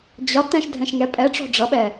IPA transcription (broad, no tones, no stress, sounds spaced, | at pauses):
d͡ʑ ɒ t ɛ̃ ʃ dʱ ɛ̃ ʃ ŋ ɛ pʼ ɛ ʈ͡ʂ ɔ̤ ɖ͡ʐ ʌ ɓ ɛ